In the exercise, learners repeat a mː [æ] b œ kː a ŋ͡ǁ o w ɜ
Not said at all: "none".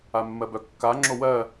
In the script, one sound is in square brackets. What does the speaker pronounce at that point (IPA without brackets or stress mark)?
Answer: ɜ